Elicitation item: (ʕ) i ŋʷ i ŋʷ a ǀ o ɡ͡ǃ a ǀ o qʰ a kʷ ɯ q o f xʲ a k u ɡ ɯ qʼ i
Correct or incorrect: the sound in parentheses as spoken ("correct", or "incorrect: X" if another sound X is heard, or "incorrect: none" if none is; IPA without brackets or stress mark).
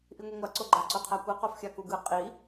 incorrect: ʔ